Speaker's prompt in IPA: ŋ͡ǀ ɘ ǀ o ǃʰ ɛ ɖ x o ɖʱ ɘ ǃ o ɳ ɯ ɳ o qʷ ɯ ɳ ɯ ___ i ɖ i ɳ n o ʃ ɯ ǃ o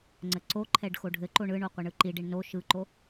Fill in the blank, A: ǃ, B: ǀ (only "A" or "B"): A